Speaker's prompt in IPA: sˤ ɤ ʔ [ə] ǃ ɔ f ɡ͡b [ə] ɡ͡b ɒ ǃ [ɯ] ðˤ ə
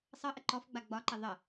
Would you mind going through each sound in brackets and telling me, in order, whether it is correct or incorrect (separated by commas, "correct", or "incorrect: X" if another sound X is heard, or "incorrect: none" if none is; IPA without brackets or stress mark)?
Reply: correct, incorrect: a, incorrect: ə